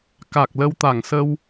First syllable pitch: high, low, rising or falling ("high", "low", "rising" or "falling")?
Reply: low